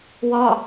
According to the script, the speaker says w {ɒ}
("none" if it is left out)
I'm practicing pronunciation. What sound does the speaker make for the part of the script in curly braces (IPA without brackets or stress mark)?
ɒ